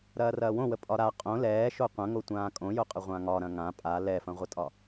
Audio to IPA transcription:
ɾ ɐː r ɐː w õ w ə pʼ ɒ ɾ a qʼ õ l ɛː ʃ o qʷ ɐ̃ ŋ o tʷ ãː kʼ õ j o qʼ ə ʁʷ ã ŋ ɒ ɾ ɐ̃ ŋ ã pʼ a l ɛ f ɐ̃ ʁʷ ə tʼ ɒ

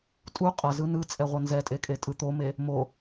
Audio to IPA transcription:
tʼ u qʼ ʌ z ɯ n ɯ t͡sʼ ɛ ʁʷ ʌ n z ɛ tʼ e kʼ e tʼ ɯ t̪ o m e | m o

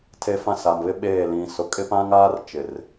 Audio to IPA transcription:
tʰ e˦ f ã˦ s a˨ m β ɪ˦ ɓ eː˦˨ l ĩ˨ s ʊ˨ kʼ ɪ˦ p ã˦ ŋ aː˦ r t͡ʃ ɪ˨ r

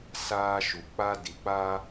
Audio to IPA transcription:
s aː˦ ʃ u˨ k͡p a˦ d i˨ k͡p aː˦

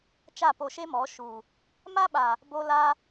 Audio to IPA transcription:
t͡ʃ a˦˨ p o˧ ʃ e˦ m ɔ˨˦ ʃ u˨ | m a˦ ɓ a˨ | b o˧ l a˧

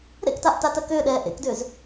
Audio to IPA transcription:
ɾ ḛ k t a ʔ t a t ɜ k ʏː ɗ ɛː ʔ ḛ k d ʏː z

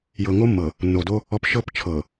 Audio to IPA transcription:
j ɤ˨ ŋ o˦ mː ɤ˨ | nː o˨ d o˦ | ɔ˨ p ʃ ɤ˦˨ p t͡ʃʰ ɤ˨

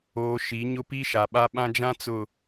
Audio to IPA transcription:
oː˨ ʃ i˨˦ ɲ ʊ˦ p i˦ ʃ a˨ ɓ a˦ ɓ ã˦ d͡ʒ ã˦ t͡s ʊ˨

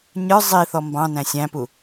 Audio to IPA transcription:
ɲ ə˞ zˤ i θ ɔ m b ɑ̃ n æ̃ sʲ æ̃ p u

